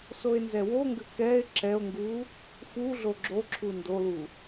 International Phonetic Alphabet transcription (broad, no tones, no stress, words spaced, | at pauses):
soe̯nzɛwoŋɡʏ kɛe̯ ǁɛo̯ŋɡu | fuɮo ɡ͡ǁoǁʰu ndolu